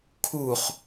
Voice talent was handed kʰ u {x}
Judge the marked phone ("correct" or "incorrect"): incorrect